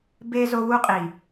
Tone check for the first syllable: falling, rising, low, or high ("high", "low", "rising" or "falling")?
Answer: high